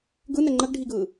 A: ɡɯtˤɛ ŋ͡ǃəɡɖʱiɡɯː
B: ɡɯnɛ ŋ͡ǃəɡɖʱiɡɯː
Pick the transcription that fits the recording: B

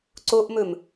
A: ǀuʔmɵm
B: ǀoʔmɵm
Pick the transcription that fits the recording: B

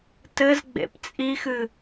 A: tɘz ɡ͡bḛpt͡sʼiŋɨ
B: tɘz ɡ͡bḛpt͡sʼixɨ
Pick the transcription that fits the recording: B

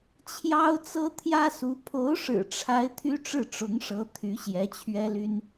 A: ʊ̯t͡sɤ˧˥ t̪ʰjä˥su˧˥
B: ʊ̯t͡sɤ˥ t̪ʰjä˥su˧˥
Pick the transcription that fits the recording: B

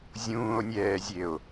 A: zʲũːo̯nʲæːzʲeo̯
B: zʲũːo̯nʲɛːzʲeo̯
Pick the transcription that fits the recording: B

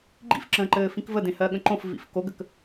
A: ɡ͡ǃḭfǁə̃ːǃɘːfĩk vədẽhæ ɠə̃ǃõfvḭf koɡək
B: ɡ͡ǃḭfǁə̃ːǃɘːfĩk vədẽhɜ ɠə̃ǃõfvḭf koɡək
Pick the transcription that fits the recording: B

